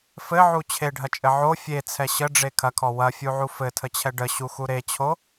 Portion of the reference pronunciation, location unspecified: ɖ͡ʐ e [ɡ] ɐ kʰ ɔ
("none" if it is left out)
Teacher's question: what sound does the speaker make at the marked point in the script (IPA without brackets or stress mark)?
kʰ